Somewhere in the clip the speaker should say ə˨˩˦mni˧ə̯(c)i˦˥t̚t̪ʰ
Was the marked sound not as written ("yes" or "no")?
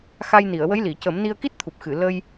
yes